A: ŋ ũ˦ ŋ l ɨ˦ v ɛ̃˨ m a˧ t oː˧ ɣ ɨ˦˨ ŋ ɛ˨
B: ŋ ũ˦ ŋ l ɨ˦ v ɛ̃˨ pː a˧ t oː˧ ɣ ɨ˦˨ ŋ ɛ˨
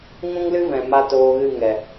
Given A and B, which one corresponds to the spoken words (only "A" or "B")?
A